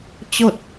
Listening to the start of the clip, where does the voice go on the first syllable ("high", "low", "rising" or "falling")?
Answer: falling